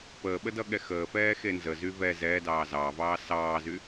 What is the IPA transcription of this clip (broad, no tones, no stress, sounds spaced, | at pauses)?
p əː ɓ ə d ʌ ɠ ɛ x əː f ɛː x e n z ə z y v ɛ z ɛː d ɑː z ɑː v ɑː s ɑː z y